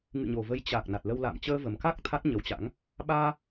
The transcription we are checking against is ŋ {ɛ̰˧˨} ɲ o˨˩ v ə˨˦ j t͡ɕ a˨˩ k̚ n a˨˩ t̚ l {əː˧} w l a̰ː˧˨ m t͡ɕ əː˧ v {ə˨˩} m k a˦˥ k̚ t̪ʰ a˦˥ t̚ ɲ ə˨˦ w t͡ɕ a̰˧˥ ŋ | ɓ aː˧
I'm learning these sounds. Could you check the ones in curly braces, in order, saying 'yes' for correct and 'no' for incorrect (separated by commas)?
no, no, yes